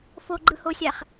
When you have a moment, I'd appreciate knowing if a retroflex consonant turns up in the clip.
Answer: no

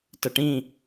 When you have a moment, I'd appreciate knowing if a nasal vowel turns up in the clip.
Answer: yes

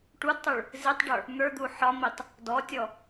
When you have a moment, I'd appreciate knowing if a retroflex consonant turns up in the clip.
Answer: yes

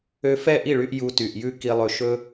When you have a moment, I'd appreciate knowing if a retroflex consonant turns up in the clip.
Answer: yes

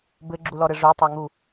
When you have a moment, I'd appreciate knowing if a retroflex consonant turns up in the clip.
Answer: yes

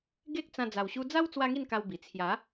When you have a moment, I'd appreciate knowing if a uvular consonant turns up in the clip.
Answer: no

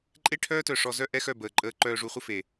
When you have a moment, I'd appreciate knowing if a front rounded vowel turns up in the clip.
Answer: yes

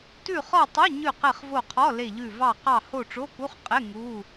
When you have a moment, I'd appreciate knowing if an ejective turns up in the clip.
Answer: yes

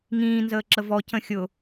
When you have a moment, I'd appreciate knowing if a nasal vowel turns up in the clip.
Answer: yes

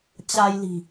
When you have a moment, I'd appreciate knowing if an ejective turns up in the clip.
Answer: no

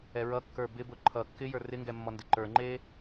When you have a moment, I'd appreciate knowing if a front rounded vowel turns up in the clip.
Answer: no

